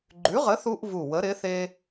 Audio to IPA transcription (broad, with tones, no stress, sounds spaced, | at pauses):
ɡ͡ǃ ʉ˨˥ ʁ ə˨˥ θ u˥ ʔ v u˧˩ w ə˨˥ ɾ ɪ˨˥ θ e˥